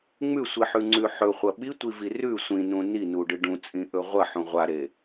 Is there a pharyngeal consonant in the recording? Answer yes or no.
yes